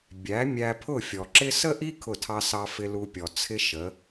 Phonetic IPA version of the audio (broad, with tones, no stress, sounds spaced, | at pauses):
bʲ æ˩˥ mʲ æ˧ pʰ ʊ˥˩ fʲ ɔ˩ ǁ ɪ˥ s ə˥ ʔ i˥ kʰ ʊ˥˩ tʰ ɑ˥ s ɑ˧ f ɪ˧ l u˧ pʲ ɔ˩ t͡sʰ ɪ˥ ʃ ə˩˥